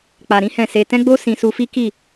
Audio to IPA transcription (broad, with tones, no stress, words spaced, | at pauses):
k͡pa˧ɾĩ˦hɛ̃˦˨ se˧ tɛ̃˦ɡ͡bo˦ sĩ˧su˧fi˦ ki˦˨